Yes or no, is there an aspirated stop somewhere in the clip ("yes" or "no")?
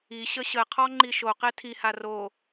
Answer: yes